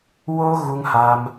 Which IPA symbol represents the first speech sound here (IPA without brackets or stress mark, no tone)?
w